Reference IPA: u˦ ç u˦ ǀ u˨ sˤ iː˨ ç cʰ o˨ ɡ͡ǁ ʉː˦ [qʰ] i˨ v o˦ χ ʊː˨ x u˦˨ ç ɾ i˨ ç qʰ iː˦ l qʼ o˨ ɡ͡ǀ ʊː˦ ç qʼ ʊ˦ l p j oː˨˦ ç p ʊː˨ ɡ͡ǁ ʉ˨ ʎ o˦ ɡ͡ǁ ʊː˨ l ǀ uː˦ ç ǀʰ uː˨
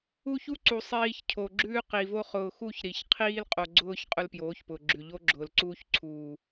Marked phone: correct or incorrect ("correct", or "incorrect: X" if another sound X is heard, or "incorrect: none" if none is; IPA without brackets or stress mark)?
incorrect: q